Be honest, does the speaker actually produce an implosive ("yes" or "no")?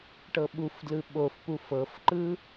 yes